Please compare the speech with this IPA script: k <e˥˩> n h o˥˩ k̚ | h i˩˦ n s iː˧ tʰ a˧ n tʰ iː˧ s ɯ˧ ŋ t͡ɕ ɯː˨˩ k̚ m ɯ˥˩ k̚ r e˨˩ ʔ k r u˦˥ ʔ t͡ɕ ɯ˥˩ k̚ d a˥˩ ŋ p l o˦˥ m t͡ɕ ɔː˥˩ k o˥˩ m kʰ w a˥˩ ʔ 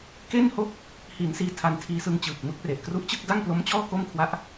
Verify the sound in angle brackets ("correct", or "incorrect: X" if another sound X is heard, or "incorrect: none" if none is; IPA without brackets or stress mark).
correct